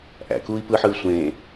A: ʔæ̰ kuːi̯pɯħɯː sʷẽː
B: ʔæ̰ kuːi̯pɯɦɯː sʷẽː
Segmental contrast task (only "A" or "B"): A